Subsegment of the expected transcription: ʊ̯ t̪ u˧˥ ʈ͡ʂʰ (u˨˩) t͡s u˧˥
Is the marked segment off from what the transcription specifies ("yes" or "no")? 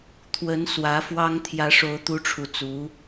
no